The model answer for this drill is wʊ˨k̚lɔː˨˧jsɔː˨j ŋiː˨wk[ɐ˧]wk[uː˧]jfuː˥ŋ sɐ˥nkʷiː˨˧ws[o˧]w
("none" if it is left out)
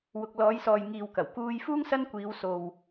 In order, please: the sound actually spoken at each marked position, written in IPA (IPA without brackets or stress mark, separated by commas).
ɐ˨˩, uː˧, o˨